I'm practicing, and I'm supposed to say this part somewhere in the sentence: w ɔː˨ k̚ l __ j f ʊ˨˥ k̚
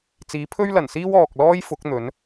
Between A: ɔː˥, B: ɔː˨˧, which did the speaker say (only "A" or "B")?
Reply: A